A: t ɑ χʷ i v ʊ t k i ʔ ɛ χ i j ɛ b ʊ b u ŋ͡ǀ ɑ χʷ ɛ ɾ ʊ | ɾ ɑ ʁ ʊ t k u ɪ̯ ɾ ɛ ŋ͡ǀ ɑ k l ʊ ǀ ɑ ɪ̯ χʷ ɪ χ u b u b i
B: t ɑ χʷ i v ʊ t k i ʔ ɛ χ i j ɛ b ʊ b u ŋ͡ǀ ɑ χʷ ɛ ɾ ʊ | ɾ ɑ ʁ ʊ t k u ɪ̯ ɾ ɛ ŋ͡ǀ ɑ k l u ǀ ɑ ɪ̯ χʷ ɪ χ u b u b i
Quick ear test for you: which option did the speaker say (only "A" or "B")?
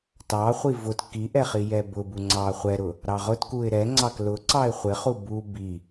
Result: A